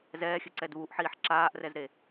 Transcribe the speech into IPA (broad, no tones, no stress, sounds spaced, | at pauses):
z ɛː xʲ ɘ ǀ ɛ d β u ʔ ħ iː ħ ǁ aː ʔ r ɛ z ɾ e